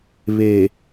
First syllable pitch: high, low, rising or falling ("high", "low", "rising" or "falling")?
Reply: low